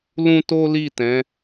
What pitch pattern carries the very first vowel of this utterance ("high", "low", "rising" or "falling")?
high